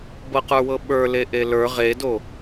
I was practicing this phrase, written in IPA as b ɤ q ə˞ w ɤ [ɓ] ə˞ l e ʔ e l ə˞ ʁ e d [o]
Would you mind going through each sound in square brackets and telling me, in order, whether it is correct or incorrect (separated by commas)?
correct, correct